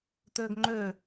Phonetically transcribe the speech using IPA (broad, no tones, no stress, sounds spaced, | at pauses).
t øː ɡ ŋ͡ǃ ø